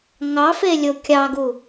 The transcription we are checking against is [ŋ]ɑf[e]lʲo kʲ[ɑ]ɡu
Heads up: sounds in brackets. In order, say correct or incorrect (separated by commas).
correct, correct, correct